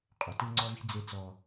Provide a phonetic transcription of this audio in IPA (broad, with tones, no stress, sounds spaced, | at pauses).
qʼ ʊ˨ t ɯ˦ ŋ͡ǀ ɔ˦ v i̤˦ d͡z e˦ t͡s ɔ˦